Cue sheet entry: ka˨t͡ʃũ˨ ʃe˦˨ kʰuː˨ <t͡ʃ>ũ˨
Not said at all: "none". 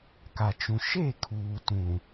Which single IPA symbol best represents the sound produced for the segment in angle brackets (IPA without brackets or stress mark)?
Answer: t